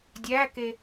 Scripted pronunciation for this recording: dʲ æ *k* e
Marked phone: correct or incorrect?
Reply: correct